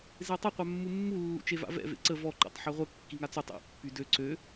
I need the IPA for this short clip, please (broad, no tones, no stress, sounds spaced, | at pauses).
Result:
z e tˤ ə qʷ œ mː u mː u lː ṵ t͡ʃ e v a̰ v ɛ̰ v ḛ ǀ ə v ɔ ǃ ɛ̰ tˤ ħ ø ʁʷ ə kː i ŋ a t͡s y tˤ ḛ pː y d ø ǀ ø